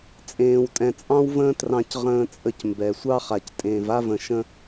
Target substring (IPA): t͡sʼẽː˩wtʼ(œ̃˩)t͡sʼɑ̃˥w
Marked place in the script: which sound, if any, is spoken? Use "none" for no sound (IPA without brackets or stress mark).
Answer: ɛ̃˩